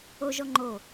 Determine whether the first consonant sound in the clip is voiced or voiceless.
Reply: voiced